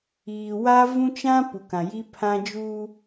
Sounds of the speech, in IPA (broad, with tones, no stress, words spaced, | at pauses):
iː˨wa˦ vũ˦t͡ʃã˦ pu˨kã˨ji˦pʰã˦ d͡ʒu˦